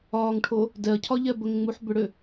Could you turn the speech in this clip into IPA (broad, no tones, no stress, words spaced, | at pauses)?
ɒːŋʈʰo | dɛɐ̯cʰɒʎɛ bəŋŋ͡muħ bʏɽʏ